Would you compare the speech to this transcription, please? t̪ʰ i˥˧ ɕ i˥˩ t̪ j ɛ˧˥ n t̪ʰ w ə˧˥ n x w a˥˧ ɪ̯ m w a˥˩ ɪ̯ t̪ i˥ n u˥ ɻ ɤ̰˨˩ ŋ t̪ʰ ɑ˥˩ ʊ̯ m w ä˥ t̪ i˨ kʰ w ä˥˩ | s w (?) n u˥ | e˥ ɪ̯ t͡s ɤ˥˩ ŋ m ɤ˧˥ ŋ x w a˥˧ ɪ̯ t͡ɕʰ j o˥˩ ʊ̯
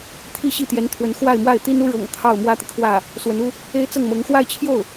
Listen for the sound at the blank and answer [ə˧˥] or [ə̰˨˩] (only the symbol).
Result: ə˧˥